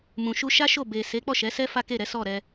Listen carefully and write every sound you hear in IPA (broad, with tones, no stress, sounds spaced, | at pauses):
m ũ˨ ʃ u˧ ʃ a˦ ʃ o˦˨ b e˨ s e˨˦ k͡p ɔ˦˨ ʃ ɛ˨˦ s ɛ˦ f a˦ k e˦˨ ɾ ɛ˨˦ s ɔ˦˨ ɾ ɛ˧